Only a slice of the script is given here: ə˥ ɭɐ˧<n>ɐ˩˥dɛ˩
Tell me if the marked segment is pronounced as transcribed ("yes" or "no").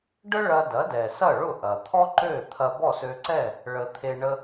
no